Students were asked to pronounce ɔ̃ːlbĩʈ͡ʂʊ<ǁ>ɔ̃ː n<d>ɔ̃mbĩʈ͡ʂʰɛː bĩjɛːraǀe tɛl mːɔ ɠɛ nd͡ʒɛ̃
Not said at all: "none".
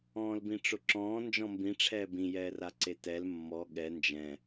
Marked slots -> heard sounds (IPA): ǁ, d͡ʒ

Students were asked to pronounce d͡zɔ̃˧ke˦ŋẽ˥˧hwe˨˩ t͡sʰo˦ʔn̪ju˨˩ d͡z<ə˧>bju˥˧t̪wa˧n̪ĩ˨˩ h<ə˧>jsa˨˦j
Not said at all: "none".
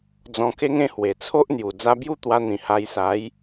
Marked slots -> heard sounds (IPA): a˧, a˧

